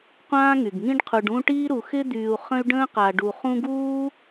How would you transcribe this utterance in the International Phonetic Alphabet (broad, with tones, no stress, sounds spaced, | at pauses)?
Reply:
qʷ ãː˥ ŋ y˩ ɡ ŋ ĩ˥ ɖ qʰ u˨ ɖ ũ˦ ʈ iː˥ ɾ u˨ x ɪ˦ d̪ yː˨ u̯ χ ə̃˥ y̯ ɖ ə̃ː˥ q a˨ ɖ u˨ χ ũ˦ ɡ uː˥